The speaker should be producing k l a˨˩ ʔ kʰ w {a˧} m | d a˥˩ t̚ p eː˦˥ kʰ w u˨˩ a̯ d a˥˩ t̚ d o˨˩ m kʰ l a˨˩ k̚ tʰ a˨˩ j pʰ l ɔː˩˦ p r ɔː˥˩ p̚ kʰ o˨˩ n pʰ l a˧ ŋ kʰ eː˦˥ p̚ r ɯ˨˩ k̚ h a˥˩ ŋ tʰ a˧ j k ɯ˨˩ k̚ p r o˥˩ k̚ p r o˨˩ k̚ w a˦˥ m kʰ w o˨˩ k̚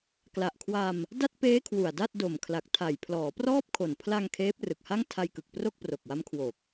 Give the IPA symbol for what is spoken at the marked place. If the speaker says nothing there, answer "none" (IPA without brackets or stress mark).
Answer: a˧